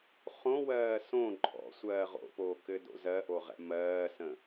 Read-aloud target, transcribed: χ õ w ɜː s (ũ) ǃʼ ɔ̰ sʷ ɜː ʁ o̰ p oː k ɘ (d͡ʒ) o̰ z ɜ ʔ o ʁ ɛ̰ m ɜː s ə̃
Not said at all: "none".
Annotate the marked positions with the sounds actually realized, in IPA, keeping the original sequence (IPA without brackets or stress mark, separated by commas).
õ, d